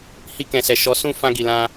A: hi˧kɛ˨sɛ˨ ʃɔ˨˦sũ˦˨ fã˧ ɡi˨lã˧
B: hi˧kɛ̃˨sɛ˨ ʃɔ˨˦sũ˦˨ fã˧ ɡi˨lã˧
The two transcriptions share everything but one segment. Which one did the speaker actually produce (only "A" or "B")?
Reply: B